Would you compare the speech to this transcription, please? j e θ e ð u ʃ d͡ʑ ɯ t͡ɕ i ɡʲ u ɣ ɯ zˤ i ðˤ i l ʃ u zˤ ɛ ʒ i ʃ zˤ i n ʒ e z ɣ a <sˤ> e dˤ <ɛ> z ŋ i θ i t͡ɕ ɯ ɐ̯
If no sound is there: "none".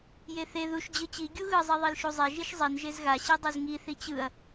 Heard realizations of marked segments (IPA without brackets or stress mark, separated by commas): ɕ, ɛ